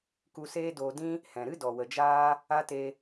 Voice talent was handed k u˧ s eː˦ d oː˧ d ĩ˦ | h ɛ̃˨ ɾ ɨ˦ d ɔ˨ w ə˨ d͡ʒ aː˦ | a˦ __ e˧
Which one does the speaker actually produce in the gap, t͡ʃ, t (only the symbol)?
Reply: t